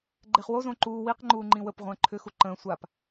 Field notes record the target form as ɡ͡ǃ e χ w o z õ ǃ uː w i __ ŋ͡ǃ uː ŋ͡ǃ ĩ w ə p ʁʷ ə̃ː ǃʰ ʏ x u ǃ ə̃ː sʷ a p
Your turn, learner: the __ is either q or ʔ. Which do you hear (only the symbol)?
q